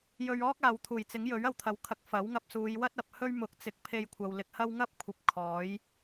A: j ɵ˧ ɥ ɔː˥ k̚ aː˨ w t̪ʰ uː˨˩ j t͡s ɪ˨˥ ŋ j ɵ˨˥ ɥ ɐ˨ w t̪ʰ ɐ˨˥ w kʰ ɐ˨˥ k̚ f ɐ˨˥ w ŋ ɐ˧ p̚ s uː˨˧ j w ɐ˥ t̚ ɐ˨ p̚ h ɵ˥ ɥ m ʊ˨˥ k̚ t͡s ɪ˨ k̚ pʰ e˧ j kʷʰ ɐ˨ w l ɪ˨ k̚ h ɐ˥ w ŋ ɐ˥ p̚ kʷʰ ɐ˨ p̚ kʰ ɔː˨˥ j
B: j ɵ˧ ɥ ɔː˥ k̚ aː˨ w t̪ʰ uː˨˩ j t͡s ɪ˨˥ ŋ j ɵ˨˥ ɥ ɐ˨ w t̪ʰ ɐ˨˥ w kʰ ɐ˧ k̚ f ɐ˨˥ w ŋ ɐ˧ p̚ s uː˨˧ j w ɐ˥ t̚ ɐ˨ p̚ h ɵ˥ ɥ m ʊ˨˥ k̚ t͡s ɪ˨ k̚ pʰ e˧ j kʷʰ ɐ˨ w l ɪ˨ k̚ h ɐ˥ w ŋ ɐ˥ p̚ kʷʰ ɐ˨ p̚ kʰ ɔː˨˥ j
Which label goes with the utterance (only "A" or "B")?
A